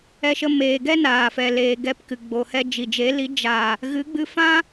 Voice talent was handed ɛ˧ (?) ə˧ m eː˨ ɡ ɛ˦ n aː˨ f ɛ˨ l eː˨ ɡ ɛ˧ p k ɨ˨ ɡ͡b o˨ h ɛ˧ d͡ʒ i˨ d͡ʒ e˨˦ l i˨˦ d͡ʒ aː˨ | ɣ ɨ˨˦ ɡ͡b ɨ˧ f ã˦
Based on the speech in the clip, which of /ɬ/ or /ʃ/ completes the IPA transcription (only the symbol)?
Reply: ʃ